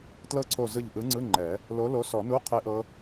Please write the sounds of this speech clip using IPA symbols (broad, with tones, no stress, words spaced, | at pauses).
tlɤ˦˥ǀʰo˧˩zɯ˧˩ʎ ʔɯ˨˥ŋ͡ǀɯ˧˥˧ŋ͡ǃɛ˨˩˦ | lo˨˥lo˨˥sɔ˨˩˦nu˧˥˧ qʰe˦˥ʔɤ˦˥